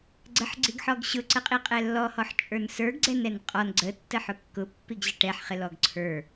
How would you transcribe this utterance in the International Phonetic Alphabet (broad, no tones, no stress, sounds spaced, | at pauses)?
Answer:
ɡ͡ǀ ə ħ ɡ͡ǀ i ɡ ħ ɔ ɡ ɕ ʊ ǀ ə qʼ i qʼ ɛ lː ɔ h ɔ ħ t͡ʃʼ ə˞ n s ə˞ ɡ ɡ͡ǀ ɛ n ɛ n qʼ ɔ n ɡ͡ǀ ə tː ə ħ ʊ kː ʊ pː i ɡ ʑ ə ʈ ɛ ħ χ ɪ l ɔ ɡ ǀʰ ə˞